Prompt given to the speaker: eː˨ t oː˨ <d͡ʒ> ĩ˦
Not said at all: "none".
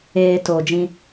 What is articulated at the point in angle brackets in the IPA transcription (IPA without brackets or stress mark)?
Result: d͡ʒ